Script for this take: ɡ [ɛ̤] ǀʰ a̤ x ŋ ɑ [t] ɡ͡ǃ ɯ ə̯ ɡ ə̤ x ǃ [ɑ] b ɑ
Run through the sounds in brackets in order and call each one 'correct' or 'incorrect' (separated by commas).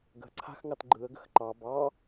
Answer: incorrect, correct, correct